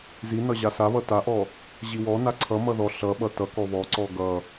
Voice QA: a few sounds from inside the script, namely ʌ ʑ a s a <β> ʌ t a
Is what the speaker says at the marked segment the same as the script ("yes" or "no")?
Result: yes